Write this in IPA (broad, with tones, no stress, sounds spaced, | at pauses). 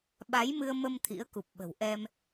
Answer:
ɓ a˨˦ j m ɨ˧ ə̯ m ə˧ m t̪ʰ ḭ˧˥ ə̯ k u˨˩ p̚ ɓ ə̤˨˩ w ʔ ɛ˧ m